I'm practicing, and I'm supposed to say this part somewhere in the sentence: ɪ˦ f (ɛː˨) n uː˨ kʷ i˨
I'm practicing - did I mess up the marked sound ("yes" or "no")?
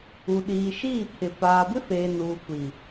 yes